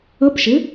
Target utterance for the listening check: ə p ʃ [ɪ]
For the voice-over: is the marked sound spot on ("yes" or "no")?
yes